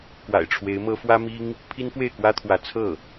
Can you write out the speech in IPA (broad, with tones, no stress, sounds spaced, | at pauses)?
k w a̰˨˩ ɪ̯ ʈ͡ʂʰ w e˧˥ ɪ̯ m ɤ˥ f w ä˥ m i˥ ŋ | pʰ i˥ n f w e˥˩ ɪ̯ k w ä˥ t̪ʰ w ä˧˥ t͡sʰ ɤ˥˩